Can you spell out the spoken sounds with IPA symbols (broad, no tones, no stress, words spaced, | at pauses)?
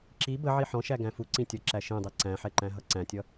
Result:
ǁi bəʕi ħɔ̃ʃæ ɡæ̃fu ǀĩtʲʌ ǁæʃĩdˤi ǀæ̃ħɛǃæ̃ ɦʌǀæ̃tʲʌ